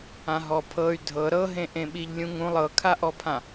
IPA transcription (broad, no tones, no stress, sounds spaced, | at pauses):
ã ɦ ɔ pʰ ɤ y̯ dʱ ɤ ɾ ɤ ɦ ẽ ʔ ẽ ɓ i ʎ lʲ ũ ŋ ũ lˠ ɤ kʰ a ʔ ɔ pʰ ã